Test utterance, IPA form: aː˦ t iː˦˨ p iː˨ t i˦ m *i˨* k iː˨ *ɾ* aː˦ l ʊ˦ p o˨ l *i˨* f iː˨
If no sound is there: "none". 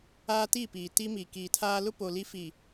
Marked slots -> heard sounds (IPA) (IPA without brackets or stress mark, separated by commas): i˨, tʰ, i˦